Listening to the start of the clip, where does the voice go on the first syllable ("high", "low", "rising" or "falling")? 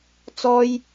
high